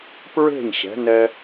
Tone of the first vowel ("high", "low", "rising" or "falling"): falling